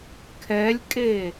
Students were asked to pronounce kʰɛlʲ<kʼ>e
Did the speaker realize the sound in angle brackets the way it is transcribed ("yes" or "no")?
yes